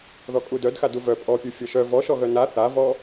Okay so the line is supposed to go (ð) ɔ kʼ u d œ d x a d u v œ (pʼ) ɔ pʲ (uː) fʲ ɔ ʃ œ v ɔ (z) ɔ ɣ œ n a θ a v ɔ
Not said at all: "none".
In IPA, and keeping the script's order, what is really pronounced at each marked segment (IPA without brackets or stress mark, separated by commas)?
ð, pʼ, u, ʃ